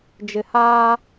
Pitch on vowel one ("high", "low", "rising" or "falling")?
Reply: low